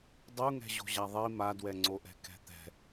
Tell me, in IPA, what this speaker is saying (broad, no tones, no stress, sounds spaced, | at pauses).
dˤ u ŋ ɛ̤ ʑ o̤ ʑ a ðˤ i m a d w ɛ ŋ͡ǀ o ʔ ɛ̤ k ɛ̤ t̪ ɛ̤